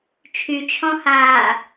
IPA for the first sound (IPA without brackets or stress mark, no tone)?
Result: t͡ʃʰ